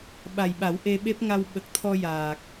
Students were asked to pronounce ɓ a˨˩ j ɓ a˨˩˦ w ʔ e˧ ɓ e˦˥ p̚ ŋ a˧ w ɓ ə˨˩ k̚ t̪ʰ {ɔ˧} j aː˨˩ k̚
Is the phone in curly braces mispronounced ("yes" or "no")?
no